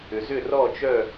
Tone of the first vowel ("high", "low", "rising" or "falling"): low